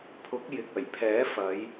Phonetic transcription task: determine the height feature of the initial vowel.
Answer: high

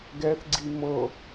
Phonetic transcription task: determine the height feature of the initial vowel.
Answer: mid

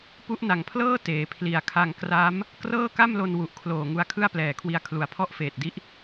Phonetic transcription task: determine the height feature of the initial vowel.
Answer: high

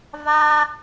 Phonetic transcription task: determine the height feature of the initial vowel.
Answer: low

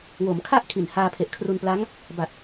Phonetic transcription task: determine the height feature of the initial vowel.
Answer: mid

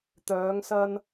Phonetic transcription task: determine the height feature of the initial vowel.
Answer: mid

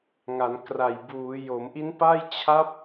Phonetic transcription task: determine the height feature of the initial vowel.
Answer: low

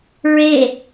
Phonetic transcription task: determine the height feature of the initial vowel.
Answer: mid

